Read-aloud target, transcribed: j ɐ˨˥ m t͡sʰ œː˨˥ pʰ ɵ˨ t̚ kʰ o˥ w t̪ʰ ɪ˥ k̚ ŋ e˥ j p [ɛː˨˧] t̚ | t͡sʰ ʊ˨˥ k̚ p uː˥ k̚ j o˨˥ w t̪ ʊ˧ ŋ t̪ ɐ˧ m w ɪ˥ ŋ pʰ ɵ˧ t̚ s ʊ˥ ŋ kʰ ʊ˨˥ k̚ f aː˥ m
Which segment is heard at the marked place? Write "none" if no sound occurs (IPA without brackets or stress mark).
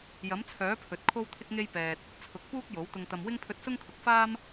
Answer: ɛː˧